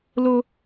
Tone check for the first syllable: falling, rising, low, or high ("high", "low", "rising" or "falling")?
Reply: high